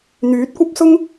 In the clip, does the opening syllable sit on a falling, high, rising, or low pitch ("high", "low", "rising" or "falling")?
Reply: rising